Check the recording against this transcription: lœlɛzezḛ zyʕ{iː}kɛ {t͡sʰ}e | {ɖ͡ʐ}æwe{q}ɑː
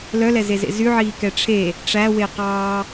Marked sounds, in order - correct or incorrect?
correct, incorrect: ʈ͡ʂʰ, incorrect: ʈ͡ʂ, correct

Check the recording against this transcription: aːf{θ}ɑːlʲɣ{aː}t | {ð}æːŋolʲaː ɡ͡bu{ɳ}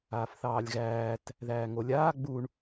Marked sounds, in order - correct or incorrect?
correct, incorrect: æː, correct, correct

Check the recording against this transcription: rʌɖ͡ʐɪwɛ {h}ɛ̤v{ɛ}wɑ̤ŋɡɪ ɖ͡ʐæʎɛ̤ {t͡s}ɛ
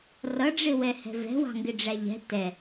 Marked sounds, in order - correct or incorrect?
correct, incorrect: ɛ̤, incorrect: t

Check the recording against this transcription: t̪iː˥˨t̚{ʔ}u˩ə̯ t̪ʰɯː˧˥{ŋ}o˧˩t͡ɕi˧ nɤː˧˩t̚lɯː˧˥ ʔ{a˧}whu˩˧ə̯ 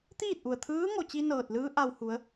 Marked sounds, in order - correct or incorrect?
correct, correct, correct

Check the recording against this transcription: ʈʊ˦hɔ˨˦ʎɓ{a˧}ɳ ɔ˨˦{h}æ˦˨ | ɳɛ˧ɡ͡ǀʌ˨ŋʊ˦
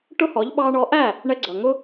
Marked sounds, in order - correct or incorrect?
incorrect: ɑ˧, incorrect: ʔ

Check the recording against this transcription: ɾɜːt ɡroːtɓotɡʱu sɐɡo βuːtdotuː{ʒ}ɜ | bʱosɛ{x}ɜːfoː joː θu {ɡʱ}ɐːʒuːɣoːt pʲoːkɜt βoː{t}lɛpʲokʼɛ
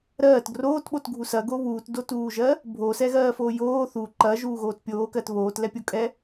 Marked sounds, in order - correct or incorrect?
correct, incorrect: ɣ, incorrect: ǃ, correct

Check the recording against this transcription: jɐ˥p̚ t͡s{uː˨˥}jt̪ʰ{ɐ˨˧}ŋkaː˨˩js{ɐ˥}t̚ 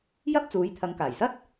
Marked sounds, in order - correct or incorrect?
correct, correct, correct

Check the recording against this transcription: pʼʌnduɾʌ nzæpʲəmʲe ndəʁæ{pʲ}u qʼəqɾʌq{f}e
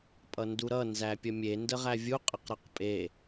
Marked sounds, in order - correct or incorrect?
incorrect: vʲ, incorrect: pʼ

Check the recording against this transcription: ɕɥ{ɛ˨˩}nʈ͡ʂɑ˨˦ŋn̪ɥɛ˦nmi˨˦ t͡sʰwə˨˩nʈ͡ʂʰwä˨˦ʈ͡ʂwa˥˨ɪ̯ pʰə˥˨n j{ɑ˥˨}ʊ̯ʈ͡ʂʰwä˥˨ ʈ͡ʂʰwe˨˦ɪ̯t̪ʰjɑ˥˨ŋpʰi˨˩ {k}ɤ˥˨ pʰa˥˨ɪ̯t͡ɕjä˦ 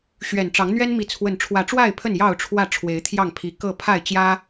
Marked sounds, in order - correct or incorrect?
correct, correct, correct

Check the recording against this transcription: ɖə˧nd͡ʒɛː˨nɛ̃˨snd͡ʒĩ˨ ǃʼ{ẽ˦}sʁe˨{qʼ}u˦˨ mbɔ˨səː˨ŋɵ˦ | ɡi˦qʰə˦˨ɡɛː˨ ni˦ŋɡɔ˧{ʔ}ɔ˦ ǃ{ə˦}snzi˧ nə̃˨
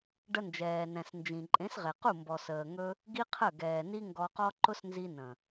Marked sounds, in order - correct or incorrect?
incorrect: ẽ˨˦, incorrect: q, incorrect: q, incorrect: ʊ˦

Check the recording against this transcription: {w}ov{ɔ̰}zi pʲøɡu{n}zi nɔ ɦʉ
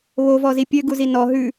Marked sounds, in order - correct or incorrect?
incorrect: β, incorrect: ɔ, incorrect: none

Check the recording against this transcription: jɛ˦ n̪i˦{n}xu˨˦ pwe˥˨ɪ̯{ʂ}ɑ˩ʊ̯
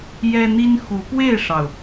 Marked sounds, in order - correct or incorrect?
correct, correct

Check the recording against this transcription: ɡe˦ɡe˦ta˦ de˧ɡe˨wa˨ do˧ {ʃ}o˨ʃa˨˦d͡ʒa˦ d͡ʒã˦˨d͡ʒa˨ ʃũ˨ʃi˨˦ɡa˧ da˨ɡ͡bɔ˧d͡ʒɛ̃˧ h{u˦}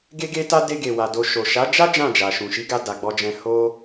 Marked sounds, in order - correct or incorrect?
correct, incorrect: o˦

